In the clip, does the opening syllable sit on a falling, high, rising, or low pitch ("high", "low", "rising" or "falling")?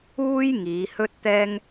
high